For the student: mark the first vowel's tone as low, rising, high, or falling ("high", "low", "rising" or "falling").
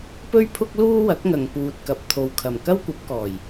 high